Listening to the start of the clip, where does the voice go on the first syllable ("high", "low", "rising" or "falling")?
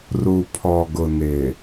low